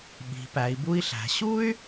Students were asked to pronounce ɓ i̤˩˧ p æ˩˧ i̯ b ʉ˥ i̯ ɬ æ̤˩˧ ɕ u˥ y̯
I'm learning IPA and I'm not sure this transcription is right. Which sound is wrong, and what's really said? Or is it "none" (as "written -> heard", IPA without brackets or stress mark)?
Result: ʉ˥ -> u˥